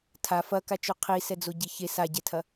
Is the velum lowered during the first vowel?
no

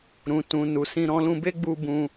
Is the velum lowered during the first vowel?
yes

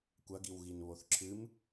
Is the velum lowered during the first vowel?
no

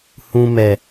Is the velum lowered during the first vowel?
yes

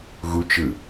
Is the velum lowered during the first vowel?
no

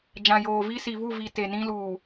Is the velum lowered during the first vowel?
yes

